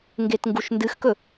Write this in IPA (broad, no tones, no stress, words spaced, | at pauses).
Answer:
ŋɡetŋɡuʃndɨxkɵ